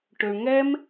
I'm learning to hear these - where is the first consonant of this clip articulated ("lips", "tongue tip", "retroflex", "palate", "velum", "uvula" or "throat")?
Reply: retroflex